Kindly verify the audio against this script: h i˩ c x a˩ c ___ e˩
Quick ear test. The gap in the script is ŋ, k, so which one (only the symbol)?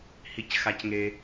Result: ŋ